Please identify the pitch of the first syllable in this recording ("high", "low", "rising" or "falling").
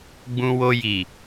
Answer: high